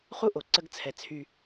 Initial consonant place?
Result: uvular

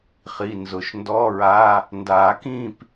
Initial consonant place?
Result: uvular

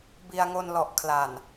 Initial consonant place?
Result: labial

